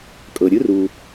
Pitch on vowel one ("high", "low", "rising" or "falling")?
low